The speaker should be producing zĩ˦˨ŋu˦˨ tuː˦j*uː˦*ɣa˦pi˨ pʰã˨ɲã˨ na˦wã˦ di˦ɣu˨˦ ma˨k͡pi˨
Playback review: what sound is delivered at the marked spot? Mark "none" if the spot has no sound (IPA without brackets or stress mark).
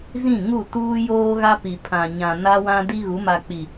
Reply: oː˦